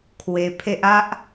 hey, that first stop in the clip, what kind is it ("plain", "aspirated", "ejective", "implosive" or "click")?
aspirated